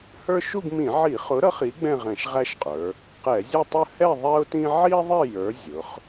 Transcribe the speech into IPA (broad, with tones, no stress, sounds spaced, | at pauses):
h ə˞˥ ʃ u˥˧ ɡ m ĩ˧˩˧ ʕ i˧˩˧ χ ʊ˨˥ ɾ ʌ˨˥ χ i˨˥ ɡ͡b ɛ̃˥˧ ʁ ɛ̃˧˩˧ ʃ ʁ æ˥˧ ʃ qʼ ə˞˩˧ | q ɛ˧˩˧ zʲ ɛ˥˧ tˤ ə˥˧ h ɛ˥˧ ðˤ ɛ˥ ʊ̯ t ĩ˥ ʕ i˥ ðˤ ɪ˥˧ j ə˞˨˥ zʲ ʊ˩˧ χ